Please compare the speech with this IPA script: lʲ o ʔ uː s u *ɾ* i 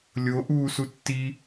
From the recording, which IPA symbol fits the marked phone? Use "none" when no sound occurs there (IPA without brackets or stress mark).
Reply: tː